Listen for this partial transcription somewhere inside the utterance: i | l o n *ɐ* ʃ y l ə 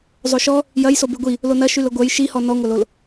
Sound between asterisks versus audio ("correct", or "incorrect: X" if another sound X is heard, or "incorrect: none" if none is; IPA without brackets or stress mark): correct